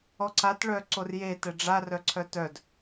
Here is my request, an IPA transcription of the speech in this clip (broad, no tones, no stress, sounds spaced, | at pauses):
ɔ ǀ a t ɭ œ ǀ o r j e t ɛ ɖ͡ʐ a r œ ǀʰ œ t œ d